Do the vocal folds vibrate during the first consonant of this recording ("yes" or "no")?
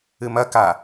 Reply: yes